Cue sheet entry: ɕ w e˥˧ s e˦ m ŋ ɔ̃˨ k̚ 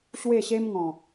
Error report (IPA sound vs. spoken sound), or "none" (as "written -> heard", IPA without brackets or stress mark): s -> ɕ